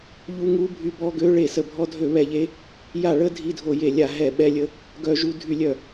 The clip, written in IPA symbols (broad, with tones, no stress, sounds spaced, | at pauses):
ʎ u˦˥ ŋ u˦˥ bʱ y˦˥ b ɔ˦˥ ɡ ø˦˥ ɭ e˥˩ s ə˥˩ bʱ ɔ˦˥ dʱ ø˥˩ β ɛ˥˩ ʎ e˦˥ | j a˥˩ ɭ ə˦˥ dʱ i˦˥ dʱ o˥˩ j e˥˩ lʲ a˥˩ ɦ ɛ˥˩ ɓ ɛ˦˥ lʲ ə˦˥ | ɡ œ˦˥ ʒ u˦˥ dʱ y˥˩ lʲ œ˥˩